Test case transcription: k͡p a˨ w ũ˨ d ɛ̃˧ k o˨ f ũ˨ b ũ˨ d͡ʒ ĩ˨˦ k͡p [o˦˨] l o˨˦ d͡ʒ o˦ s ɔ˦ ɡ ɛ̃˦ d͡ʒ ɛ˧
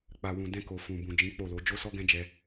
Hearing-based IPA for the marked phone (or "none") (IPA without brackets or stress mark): o˦˨